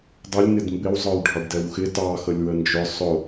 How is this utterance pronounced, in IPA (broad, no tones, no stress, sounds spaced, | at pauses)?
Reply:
dˤ ə lʲ n ɪ d m b ɪ w zˤ ə˞ w ɖʱ ɑ ɖ d ɛ w x ɪ t ɑ x ə lʲ w ə n d͡ʒ ʊ sˤ ʊ